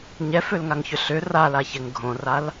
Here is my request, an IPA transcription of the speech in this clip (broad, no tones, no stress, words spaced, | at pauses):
ɲɛfølŋaŋçʏ ɬʏ ralaçɛŋ ɡʱõral